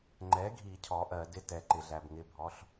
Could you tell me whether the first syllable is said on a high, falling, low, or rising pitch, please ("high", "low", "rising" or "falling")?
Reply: rising